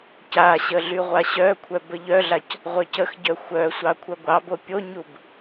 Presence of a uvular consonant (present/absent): present